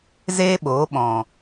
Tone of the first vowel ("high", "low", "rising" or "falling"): high